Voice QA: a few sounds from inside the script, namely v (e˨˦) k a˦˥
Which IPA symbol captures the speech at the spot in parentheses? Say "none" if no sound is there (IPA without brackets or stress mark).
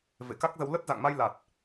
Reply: ḛ˧˨